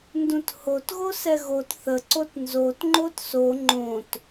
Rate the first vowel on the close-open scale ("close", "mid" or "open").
close